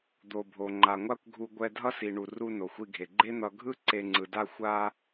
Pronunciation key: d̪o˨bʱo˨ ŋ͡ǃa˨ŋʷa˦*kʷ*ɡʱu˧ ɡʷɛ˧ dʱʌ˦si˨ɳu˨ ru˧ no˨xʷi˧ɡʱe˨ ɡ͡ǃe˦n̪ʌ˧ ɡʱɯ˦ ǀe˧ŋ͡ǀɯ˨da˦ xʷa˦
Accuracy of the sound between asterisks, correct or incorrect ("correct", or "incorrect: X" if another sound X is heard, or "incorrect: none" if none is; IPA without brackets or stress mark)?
correct